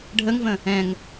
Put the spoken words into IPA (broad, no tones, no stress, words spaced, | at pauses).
ɖʱəŋvə̃ | ɛ̃ŋ